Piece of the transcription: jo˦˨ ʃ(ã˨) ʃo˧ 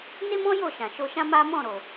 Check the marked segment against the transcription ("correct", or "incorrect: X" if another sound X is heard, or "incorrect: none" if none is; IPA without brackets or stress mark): correct